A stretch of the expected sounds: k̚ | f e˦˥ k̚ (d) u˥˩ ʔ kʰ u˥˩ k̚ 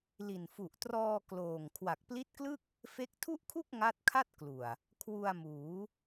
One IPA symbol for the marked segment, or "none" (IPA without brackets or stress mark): tʰ